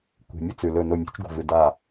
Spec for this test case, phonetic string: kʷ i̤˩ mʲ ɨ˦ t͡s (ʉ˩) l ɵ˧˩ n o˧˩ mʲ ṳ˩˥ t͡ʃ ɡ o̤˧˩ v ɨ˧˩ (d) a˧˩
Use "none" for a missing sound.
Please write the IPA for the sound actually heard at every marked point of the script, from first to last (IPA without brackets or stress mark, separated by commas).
ʉ˩, d